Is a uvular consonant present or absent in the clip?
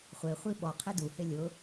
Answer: present